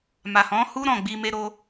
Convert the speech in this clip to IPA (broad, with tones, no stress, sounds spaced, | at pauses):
m a˨ h ɔ̃˨˦ h u˦ ɾ ɔ̃˦˨ ɡ͡b i˧ m e˧ ɾ o˧